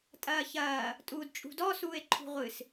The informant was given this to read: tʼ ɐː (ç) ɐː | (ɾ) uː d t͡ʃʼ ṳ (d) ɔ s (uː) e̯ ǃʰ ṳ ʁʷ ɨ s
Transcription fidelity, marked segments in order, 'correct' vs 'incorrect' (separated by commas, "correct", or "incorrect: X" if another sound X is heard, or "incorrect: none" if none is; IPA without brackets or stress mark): correct, incorrect: tʼ, correct, correct